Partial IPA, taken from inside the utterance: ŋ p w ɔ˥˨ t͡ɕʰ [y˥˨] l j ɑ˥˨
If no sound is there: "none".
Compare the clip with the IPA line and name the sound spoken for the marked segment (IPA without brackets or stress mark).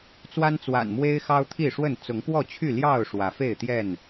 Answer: y˥˨